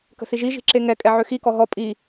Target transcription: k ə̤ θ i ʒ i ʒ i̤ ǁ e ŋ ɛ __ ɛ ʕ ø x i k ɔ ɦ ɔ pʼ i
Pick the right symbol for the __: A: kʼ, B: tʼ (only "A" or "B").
A